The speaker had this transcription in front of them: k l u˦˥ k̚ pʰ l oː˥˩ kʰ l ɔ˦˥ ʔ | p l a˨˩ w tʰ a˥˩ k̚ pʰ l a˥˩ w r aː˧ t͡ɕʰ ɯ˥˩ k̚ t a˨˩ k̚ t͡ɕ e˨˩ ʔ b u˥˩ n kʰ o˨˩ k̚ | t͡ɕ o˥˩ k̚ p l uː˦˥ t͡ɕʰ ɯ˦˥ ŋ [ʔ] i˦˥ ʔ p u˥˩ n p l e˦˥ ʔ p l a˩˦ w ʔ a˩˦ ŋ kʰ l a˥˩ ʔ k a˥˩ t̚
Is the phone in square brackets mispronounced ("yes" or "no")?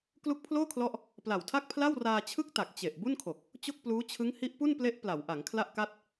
yes